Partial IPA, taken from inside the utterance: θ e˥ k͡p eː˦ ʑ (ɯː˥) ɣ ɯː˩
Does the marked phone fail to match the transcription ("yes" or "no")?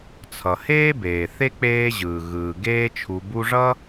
yes